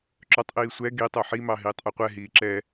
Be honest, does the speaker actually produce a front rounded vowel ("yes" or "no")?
yes